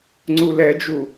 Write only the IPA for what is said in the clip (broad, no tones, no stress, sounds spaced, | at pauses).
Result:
ŋ͡ǀ u l ɛ d͡ʒ u